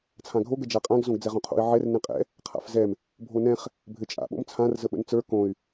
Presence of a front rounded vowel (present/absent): present